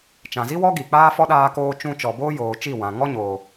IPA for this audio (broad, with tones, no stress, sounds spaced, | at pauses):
t͡ʃ ã˨ z i˦ w ɔ˦ ɡ i˨ k͡p aː˦ f ɔ˦ ɗ aː˧ k oː˧ t͡ʃ ũ˧ t͡ʃ ɔ˨ b oː˦ j oː˨ t͡ʃ i˦˨ w ã˨ ŋ ɔ˦ ɲ oː˨